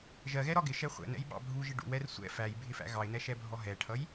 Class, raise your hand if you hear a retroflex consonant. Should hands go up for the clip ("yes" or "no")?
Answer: yes